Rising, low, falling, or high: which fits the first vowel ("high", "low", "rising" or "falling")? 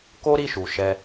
high